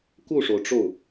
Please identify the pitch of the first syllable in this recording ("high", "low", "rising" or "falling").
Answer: falling